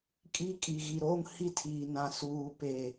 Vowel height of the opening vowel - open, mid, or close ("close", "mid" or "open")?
close